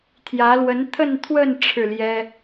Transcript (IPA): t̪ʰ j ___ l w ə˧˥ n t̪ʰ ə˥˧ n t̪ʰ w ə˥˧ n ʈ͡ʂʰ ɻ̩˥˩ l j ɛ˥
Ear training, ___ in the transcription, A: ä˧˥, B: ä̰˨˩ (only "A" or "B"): A